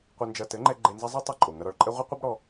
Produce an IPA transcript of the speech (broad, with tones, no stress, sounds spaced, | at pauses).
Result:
qʷ ɘ˧ n d͡ʒ ɐ˧ t ɘ˨˦ ŋ͡ǃ ɛ˧ ɡ͡ǃ e˧ n z ɐ˦ zˤ ɛ˦ tˤ ɐ˧ ǃʼ o˨ ŋ ɐ˦ ɾ ɔ˧ ɭ ǃʼ ɛ˦ ʁʷ ɐ˦ qʷ ɘ˦ b ɽ ɔ˦